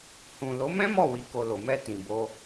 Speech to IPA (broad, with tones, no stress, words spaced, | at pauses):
hũ˨ lo˨˦mɛ̃˦ mɔ˦˨wi˨ko˨ lo˨mɛ˧ tĩ˨bo˧